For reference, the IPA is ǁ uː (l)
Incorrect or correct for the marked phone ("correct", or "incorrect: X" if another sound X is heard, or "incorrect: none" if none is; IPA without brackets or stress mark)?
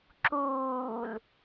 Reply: correct